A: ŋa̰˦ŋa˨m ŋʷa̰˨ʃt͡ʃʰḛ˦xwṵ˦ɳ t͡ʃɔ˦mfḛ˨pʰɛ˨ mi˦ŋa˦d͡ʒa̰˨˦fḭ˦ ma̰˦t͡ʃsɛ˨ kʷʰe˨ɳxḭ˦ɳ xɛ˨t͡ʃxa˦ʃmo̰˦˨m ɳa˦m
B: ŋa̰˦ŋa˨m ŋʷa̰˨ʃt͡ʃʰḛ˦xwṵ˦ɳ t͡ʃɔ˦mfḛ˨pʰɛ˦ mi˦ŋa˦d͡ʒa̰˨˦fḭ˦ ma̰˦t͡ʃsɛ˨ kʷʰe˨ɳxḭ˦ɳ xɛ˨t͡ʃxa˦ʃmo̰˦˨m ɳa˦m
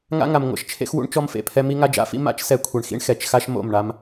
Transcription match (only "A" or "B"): B